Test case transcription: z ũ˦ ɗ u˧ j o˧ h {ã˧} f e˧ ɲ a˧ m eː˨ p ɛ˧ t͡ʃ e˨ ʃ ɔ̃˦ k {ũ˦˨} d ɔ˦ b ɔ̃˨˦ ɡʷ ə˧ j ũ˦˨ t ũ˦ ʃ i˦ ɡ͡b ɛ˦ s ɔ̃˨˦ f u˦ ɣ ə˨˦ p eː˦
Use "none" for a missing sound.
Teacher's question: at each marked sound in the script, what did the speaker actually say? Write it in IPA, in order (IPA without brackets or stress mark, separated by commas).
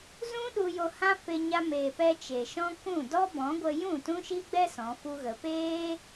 ã˦, ũ˦˨